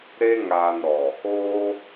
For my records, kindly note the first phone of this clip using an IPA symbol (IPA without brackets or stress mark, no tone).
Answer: ɾ